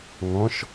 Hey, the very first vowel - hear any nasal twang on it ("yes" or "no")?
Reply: yes